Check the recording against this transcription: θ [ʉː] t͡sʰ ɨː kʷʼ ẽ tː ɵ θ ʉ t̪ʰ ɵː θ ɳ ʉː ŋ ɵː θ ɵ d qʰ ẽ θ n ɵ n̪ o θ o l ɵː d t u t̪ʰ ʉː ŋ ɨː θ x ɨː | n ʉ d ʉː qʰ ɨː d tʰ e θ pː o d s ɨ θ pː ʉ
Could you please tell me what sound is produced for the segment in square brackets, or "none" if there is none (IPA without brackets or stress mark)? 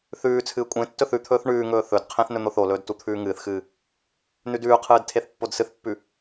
ʉː